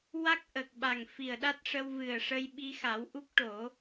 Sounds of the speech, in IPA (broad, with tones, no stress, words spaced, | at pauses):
wa˦˥k̚ʔə˨˩k̚ɓa˨˩ŋ fi˨˩ə̯ɗa˦˥t̚ʂə˧wvɨ˨˩ə̯ ʂə˧j ɓi˧xa˨˩˦wʔu˦˥k̚ʈo˨˩˦